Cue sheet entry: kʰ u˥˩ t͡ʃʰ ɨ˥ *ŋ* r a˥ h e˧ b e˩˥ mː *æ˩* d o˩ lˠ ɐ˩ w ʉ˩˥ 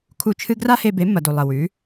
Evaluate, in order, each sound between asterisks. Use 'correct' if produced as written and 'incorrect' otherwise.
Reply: incorrect: ɡ, incorrect: ɐ˩

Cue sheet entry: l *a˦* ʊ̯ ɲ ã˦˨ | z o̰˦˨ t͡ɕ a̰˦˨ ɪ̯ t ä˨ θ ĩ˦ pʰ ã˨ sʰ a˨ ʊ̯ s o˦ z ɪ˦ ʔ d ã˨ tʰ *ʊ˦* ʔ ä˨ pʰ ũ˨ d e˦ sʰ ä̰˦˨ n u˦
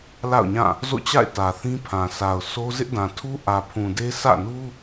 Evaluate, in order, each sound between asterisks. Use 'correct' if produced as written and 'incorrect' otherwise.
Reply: incorrect: a̰˦˨, incorrect: u˦

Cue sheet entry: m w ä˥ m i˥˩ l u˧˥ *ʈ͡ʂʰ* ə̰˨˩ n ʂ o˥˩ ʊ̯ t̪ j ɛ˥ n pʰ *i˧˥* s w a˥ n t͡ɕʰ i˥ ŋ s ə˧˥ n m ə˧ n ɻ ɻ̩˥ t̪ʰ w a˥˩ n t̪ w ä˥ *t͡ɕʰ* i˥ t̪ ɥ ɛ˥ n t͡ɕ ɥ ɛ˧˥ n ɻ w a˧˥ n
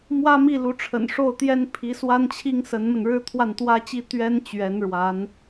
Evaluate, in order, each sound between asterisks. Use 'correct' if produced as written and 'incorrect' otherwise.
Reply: correct, correct, incorrect: t͡ɕ

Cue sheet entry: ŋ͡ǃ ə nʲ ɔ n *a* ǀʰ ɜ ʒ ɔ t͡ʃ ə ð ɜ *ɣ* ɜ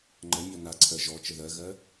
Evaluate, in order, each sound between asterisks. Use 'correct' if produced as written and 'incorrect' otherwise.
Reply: correct, correct

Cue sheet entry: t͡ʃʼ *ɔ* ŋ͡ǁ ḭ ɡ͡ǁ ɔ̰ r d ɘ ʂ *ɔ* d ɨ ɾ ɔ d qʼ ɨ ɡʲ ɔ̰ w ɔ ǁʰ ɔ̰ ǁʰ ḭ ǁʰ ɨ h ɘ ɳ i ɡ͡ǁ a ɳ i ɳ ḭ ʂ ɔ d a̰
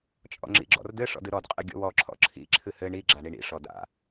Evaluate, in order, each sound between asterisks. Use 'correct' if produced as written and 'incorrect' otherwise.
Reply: incorrect: ɔ̰, incorrect: ɔ̰

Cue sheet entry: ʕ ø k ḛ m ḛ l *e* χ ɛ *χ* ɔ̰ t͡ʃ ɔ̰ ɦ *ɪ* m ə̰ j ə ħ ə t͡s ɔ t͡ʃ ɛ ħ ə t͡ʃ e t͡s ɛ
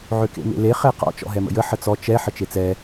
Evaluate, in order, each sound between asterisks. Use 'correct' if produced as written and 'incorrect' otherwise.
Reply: correct, incorrect: q, incorrect: ɛ

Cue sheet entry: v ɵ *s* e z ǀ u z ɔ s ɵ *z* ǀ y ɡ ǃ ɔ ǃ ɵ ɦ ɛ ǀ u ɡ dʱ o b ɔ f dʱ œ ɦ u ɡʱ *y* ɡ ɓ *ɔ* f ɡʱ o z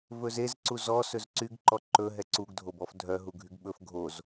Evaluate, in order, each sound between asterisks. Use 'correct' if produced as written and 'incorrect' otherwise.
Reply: incorrect: z, correct, correct, incorrect: ɵ

